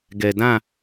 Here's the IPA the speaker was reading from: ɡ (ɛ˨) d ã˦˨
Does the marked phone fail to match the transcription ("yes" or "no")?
no